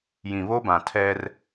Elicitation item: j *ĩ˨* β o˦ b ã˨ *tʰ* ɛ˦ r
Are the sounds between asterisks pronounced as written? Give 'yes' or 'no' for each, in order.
yes, yes

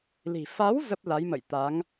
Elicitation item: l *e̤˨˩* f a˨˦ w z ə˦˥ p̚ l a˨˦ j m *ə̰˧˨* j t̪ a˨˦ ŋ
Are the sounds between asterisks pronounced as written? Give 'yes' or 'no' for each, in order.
no, yes

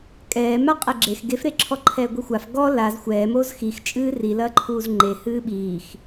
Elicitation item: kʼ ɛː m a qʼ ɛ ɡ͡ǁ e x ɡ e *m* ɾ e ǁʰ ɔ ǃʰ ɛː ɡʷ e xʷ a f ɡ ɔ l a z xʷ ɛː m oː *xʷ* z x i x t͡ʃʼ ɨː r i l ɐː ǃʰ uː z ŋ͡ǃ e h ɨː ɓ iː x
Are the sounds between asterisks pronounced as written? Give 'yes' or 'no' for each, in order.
no, no

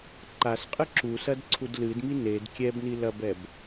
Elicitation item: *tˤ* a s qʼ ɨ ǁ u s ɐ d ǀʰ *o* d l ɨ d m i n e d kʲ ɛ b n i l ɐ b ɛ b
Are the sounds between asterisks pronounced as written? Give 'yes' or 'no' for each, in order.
no, no

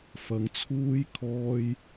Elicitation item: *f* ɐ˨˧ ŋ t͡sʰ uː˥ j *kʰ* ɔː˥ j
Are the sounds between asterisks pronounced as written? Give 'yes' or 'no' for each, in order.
yes, yes

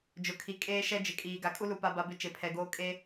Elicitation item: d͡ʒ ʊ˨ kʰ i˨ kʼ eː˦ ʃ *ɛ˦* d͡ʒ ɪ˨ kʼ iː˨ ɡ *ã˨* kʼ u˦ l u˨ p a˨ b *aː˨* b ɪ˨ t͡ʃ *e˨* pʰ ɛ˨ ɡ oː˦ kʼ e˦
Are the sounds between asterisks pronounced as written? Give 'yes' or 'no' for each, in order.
yes, no, no, yes

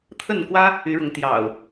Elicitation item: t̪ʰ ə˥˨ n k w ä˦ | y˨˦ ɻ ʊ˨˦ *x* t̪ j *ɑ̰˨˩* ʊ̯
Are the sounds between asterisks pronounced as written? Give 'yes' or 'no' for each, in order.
no, yes

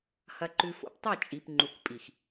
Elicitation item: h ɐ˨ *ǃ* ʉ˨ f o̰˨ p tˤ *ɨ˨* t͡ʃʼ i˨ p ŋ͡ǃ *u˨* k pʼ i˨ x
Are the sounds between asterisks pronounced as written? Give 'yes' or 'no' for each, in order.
yes, no, yes

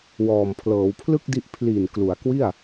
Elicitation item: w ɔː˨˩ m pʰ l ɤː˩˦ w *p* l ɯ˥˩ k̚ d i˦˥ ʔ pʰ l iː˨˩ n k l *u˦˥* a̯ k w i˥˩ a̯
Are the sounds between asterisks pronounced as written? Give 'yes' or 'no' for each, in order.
no, no

